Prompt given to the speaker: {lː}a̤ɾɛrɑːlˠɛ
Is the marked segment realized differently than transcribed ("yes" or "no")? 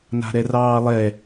yes